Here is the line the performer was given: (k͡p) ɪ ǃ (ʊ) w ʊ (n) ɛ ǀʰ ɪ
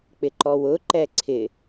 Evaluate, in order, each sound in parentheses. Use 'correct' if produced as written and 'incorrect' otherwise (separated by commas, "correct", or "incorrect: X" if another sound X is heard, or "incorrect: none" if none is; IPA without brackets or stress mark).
correct, incorrect: ɔ, incorrect: ǃ